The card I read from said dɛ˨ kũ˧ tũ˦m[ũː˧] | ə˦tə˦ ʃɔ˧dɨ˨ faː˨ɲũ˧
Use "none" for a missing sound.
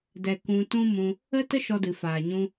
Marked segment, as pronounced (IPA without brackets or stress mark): ũ˧